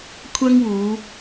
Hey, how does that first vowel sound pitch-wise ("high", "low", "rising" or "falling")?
high